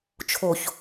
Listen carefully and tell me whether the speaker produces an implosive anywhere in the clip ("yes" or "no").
no